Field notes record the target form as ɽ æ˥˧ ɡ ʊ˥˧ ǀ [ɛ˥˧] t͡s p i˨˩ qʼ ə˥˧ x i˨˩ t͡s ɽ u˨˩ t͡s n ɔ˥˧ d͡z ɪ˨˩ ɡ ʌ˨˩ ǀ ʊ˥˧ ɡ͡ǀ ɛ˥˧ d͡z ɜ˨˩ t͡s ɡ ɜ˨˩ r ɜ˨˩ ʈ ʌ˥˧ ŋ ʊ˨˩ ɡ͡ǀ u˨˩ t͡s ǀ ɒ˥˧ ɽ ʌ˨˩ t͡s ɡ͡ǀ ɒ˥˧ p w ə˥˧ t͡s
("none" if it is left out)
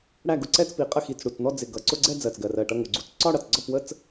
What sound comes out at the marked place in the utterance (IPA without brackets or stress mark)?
ɛ˥˧